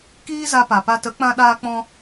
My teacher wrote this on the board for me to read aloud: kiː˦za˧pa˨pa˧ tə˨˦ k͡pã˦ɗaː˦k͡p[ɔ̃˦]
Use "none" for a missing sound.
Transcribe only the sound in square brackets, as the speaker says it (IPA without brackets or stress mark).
ɔ̃˦